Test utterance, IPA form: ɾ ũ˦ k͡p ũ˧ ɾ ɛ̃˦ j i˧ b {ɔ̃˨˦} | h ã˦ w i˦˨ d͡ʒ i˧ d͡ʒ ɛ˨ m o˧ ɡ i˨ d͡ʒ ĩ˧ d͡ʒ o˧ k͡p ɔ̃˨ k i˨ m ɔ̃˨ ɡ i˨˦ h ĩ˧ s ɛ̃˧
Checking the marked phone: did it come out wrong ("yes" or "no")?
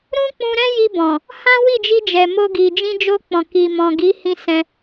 yes